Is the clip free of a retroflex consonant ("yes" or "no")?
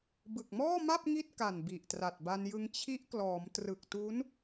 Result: yes